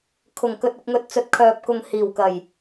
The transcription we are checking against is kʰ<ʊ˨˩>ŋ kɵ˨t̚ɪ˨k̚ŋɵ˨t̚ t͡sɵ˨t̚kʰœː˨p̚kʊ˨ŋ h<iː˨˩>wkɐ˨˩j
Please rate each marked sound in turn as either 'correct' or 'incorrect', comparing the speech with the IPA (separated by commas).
correct, correct